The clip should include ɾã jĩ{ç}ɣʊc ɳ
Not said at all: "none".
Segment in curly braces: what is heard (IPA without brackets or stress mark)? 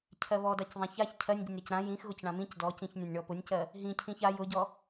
x